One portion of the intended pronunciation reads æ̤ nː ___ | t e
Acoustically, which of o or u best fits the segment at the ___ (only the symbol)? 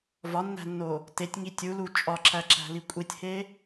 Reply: o